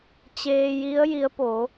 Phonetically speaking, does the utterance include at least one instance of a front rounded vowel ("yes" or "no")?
no